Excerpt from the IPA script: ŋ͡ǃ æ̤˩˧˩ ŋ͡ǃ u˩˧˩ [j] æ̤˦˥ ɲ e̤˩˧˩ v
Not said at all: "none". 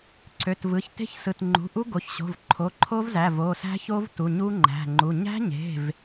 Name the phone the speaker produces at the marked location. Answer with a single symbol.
ɲ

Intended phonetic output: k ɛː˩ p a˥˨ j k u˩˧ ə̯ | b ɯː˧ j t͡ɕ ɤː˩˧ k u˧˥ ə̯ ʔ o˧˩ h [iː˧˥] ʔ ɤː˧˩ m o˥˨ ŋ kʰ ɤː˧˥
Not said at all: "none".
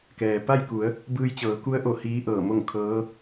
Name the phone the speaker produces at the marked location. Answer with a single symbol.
iː˧˥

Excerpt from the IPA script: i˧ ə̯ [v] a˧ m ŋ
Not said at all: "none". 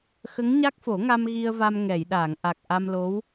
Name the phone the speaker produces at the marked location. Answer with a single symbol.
v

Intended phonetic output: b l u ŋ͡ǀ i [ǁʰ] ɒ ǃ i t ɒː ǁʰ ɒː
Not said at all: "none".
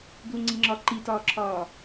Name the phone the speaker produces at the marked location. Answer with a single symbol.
ŋ͡ǁ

